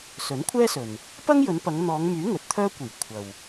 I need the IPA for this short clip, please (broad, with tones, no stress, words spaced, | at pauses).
sɵ˨˥nkʷʰɛː˥sɵ˨n | pɐ˥ŋjɵ˨˧n pɐ˨˧ŋn̪ɔː˨˧ŋmyː˨˥ ŋɵ˨˥t̚t̪ʰœː˥kʷiː˨˩ kʷʰɐ˨w